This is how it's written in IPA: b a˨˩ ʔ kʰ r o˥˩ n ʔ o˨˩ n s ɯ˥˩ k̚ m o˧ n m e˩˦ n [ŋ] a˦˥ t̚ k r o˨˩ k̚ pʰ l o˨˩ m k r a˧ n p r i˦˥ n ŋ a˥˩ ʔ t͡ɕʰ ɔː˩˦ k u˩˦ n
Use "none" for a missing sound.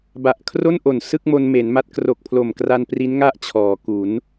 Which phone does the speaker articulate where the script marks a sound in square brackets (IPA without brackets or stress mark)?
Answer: m